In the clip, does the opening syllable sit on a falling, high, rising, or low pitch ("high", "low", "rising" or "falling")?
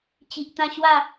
low